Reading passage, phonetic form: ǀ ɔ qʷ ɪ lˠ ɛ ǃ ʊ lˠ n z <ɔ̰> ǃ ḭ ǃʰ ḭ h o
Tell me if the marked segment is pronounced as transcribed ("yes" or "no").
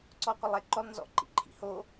yes